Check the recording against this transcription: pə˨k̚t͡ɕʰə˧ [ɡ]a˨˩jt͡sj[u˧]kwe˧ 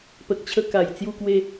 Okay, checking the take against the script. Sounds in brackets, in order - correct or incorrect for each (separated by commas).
incorrect, correct